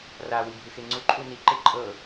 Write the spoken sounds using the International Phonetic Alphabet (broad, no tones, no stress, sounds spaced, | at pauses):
r a w i bʱ ɯ x e ŋ͡ǀ u ǃʼ u n i ǃ e ǃʼ ɤ